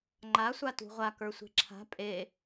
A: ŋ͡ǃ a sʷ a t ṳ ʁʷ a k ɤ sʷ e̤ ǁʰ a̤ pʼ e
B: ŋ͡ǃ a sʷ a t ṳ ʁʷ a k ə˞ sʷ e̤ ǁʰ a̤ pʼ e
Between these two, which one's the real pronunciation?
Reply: B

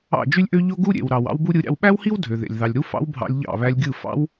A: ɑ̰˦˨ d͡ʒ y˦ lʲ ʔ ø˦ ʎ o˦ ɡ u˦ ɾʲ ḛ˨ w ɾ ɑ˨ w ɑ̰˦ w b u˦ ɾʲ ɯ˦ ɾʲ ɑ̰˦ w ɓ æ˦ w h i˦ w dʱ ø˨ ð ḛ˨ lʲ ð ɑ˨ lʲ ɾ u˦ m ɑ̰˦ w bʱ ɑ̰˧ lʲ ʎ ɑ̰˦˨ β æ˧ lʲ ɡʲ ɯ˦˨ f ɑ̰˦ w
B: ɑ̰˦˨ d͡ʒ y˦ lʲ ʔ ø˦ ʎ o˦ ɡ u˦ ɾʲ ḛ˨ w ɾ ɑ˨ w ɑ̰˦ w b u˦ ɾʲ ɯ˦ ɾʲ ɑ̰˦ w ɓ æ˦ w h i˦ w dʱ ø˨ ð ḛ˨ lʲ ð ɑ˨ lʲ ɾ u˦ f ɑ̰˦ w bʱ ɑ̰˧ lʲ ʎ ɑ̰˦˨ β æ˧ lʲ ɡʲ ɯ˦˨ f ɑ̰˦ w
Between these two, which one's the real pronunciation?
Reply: B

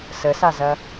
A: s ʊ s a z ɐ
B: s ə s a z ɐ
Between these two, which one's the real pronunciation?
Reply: B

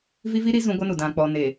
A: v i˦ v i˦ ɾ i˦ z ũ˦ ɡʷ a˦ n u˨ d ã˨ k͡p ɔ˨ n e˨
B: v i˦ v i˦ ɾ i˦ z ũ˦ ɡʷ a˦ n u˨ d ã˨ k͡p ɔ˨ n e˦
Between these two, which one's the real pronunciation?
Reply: A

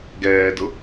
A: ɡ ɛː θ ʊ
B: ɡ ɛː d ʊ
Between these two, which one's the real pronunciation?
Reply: B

